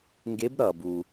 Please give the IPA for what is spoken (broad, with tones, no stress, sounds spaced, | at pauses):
ŋ ɡ e˧˥ b ɾ ʌ˩ b u˩